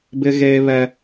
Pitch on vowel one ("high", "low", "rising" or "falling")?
high